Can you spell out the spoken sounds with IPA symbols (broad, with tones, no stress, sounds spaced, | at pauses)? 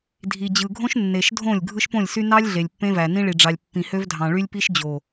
dʱ i˨ d͡ʑ ɯ˨ ɡʱ õ˦ ʃ nː e˨ ʃ dʱ õ˦˨ lʲ ɡʱ ɯ˦ ʃ p õ˦˨ lʲ s y˦ n ɑ˦ lʲ ɮ e˨ lʲ pː ẽ˦ v æ˨ n ĩ˦ ɭ i˨ ɖ͡ʐ ɑ˨ lʲ pː ĩ˨ h ø˦ v dʱ ɑ̃˨ ɭ y˦ lʲ p i˦ ʃ d͡ʑ o˨